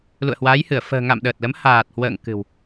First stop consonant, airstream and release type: implosive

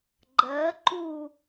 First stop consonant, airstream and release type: click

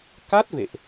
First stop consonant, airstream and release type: plain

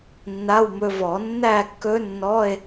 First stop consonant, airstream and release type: plain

